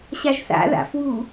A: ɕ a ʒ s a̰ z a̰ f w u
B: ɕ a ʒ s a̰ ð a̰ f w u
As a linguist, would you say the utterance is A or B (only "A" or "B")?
B